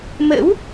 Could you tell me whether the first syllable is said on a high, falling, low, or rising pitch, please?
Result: rising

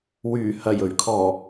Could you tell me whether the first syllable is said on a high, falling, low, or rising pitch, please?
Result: low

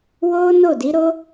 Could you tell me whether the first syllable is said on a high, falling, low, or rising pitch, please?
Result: high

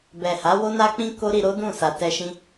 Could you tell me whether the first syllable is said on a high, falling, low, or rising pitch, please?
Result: low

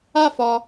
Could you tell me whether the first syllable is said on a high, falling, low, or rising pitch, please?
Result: falling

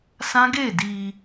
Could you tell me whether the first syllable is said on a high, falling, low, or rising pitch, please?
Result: high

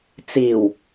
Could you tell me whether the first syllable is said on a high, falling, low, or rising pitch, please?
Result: low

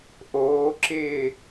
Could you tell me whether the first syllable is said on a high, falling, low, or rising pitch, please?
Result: rising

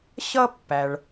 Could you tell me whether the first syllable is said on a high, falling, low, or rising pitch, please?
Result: high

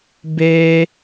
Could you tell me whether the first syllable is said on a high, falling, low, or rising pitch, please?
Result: high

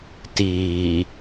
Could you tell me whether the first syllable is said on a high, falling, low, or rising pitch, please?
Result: low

